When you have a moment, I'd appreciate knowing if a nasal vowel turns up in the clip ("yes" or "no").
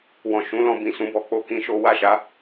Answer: yes